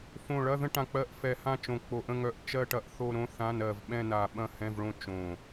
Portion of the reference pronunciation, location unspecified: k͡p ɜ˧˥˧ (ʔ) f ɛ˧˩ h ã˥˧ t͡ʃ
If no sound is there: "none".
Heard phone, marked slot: ʔ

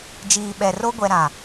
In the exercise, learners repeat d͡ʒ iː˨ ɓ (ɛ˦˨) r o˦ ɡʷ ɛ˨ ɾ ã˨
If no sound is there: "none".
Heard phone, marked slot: ɛ˨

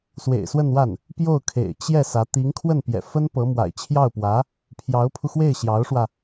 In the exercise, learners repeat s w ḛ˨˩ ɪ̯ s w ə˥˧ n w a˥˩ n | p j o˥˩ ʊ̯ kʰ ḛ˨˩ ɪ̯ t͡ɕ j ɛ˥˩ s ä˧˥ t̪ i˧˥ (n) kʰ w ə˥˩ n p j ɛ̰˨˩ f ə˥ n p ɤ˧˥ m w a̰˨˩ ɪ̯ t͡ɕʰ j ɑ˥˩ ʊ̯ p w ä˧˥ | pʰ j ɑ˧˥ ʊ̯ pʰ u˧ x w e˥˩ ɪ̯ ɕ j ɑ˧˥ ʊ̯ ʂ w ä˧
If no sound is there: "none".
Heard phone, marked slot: ŋ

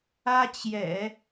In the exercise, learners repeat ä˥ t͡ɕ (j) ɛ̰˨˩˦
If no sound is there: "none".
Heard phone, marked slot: j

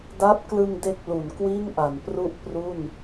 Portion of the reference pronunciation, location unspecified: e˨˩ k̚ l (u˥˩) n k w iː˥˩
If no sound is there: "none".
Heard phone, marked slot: u˩˦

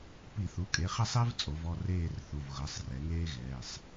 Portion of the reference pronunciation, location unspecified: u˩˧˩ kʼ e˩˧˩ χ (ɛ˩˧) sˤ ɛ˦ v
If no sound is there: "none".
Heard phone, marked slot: ɛ˥˨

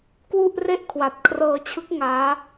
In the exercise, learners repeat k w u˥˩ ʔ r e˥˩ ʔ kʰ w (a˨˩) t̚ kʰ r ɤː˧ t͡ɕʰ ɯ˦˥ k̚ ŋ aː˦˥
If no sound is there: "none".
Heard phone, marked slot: a˨˩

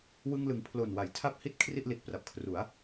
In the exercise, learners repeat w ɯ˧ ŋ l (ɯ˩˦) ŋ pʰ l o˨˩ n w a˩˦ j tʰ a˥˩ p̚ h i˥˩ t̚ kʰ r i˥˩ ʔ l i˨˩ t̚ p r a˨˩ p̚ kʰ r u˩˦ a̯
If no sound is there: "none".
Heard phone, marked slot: ɯ˩˦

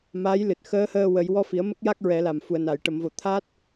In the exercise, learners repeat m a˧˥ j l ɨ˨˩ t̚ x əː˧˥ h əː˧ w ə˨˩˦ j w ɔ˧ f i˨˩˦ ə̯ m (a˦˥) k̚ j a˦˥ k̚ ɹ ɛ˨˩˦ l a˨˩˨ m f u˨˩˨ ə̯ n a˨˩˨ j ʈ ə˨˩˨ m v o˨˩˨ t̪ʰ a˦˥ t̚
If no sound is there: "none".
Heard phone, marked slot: ə˦˥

